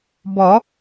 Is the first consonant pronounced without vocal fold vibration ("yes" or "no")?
no